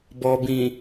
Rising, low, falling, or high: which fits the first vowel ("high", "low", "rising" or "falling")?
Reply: low